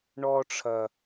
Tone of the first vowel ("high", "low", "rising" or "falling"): high